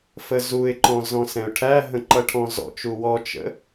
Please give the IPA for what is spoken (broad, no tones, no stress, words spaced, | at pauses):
fəzuɪ̯ǃɔ̃ zɔ̃sɛ̃ʊ̯ʈʰæɦə̃ ǃʌʈʰɔ̃zɔ̰t͡ʃu wɔt͡ʃə̰